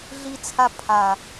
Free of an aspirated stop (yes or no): no